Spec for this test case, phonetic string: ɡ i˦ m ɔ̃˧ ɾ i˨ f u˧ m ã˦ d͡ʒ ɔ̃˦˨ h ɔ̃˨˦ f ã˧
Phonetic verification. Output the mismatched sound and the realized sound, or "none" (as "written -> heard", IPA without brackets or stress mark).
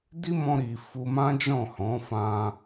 ɡ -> d